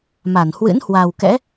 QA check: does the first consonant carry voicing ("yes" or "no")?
yes